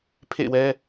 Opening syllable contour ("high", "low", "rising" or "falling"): falling